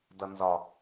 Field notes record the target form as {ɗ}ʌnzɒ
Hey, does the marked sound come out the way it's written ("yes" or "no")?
no